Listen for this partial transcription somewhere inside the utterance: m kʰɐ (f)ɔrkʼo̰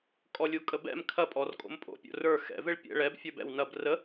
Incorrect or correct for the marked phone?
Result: incorrect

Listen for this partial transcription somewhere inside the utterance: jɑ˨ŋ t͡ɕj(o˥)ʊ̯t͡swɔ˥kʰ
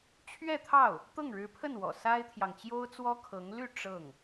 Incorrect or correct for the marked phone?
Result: correct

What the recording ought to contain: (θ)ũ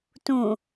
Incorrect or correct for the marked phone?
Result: incorrect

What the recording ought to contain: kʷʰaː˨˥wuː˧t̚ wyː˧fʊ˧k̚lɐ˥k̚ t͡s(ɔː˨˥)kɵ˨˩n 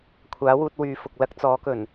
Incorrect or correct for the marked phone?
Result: correct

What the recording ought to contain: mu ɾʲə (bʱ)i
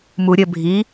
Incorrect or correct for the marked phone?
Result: correct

